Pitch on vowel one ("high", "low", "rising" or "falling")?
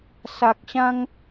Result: low